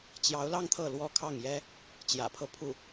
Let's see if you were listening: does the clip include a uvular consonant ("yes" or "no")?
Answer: no